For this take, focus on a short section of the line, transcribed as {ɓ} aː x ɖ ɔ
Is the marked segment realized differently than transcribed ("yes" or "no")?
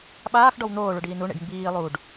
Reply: no